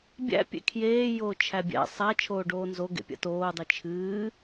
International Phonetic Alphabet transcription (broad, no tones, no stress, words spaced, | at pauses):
bʲæ̰ pʲḛkʰjeː joːt͡ʃʰæbʲæ̰ sˤa t͡ʃʰoːɖoːnzo ɡḛpʲa̰toː dˤɨt͡ʃʰɨː